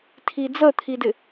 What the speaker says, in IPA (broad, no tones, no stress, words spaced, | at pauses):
tʰid͡zət̪ʰidɪ